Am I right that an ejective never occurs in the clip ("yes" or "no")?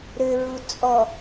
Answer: no